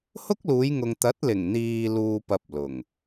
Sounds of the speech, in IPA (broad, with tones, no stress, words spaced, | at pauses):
hʊ˥k̚luː˨˧jŋʊ˨ŋ t̪ɐ˨˥t̚lɪ˨˩ŋn̪iː˨ luː˧pɐ˧p̚lʊ˨˩ŋ